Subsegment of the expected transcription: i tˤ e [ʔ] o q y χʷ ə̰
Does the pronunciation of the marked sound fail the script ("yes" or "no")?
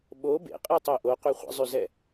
no